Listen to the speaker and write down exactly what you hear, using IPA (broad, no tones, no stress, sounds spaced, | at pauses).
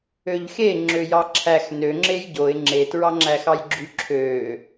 ø ʎ x e ŋ͡ǁ ø j ɑ ǁʰ æ x n ø ŋ͡ǁ e j ɟ o ɪ̯ ŋ͡ǁ e t ɹ ɑ ŋ͡ǁ æ x ɑ j ɡ͡ǁ y ǁʰ ø